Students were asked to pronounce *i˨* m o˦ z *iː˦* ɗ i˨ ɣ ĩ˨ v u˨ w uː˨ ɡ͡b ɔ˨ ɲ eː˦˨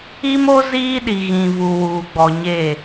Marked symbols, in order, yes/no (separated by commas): no, yes